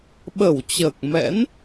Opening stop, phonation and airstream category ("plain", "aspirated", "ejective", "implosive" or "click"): implosive